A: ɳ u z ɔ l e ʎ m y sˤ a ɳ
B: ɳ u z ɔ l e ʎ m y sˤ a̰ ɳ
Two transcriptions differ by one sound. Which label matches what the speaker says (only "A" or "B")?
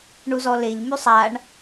A